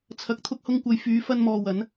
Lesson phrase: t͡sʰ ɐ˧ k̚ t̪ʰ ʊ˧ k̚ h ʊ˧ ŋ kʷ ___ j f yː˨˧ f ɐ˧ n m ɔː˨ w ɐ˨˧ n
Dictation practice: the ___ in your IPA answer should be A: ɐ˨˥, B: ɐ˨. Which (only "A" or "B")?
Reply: B